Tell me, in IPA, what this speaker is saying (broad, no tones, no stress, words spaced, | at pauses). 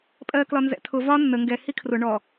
pʼɜklɒ nzɛ̰tʰʊ vɒ nːə ŋɡɛ hikʰrʊ ɳɔ